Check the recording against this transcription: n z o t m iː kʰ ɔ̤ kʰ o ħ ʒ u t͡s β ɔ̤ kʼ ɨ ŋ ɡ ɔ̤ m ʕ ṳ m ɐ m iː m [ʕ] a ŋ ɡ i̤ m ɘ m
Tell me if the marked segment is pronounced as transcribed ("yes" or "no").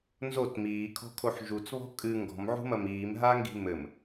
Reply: no